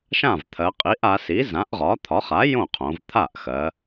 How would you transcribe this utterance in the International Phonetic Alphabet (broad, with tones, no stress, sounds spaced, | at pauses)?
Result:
ʃ ã˥˩ v t̪ʰ ɜ˩˧ qʼ i˩˥ ʔ a˩˧ s i˩˥ z ã˩˥ ʔ ʁ ɒ˩˥ t̪ʰ ɒ˩˥ χ a˩˥ j õ˥˩ qʰ õ˩˧ v t̪ʰ a˥˩ ʔ x ɜ˩˧